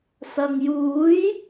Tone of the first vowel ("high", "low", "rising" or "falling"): low